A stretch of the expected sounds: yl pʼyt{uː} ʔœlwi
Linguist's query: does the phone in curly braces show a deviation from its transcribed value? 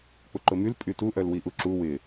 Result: yes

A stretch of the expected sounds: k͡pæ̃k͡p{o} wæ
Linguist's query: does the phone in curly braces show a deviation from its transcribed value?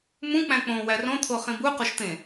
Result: yes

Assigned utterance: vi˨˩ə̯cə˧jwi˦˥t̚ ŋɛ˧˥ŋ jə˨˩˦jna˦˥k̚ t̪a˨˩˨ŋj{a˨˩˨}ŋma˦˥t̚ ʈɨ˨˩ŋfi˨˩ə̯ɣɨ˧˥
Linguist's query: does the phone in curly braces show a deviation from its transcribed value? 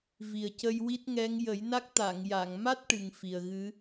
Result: no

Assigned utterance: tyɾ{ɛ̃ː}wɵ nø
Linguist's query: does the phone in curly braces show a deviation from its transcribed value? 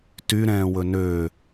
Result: no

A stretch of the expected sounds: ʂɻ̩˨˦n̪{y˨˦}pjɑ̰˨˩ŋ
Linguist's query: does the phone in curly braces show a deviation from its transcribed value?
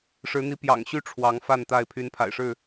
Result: yes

